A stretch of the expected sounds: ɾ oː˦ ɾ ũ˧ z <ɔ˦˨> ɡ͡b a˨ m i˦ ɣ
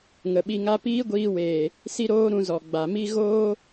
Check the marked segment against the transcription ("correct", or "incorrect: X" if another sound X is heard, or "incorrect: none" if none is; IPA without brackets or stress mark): incorrect: ɔ˨